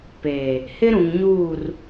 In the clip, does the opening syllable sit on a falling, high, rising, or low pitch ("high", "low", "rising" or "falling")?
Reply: low